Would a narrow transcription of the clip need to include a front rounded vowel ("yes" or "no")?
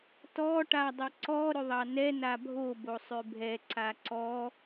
yes